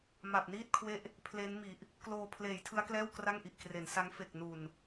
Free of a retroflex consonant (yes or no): yes